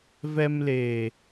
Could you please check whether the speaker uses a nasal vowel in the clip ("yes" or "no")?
no